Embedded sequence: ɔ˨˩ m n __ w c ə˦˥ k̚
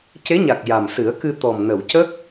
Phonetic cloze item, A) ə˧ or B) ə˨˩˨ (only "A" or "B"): B